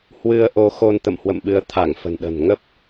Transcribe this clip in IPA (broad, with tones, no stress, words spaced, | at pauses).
hwɨ˧ə̯ʔo˧xo˧n t̪ə̰˧˨mhwə̰˧˨mɓɨ˨˦ə̯ t̪ʰa˧˩ŋ fə̤˨˩nɗə̤˨˩n ŋə˦˥p̚